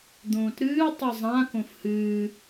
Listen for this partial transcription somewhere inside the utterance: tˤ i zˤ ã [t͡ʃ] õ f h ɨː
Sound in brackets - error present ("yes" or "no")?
yes